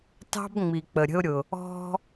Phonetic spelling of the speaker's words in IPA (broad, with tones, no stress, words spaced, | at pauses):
tɑ̤˦b ŋ͡mi˨ k͡pə˨ɾʲə̤˦ʊ̯ ɾʲʊ˨ | ɔ̤˧